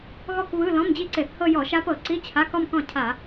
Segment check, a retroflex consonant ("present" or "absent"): absent